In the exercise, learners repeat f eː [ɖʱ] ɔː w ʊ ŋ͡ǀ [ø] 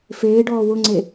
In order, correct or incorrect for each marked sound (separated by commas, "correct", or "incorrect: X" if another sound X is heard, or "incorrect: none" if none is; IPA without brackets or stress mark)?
incorrect: ɖ, incorrect: e